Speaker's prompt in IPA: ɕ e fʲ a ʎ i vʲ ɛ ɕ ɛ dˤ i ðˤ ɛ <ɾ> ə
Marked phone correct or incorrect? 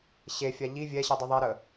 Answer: correct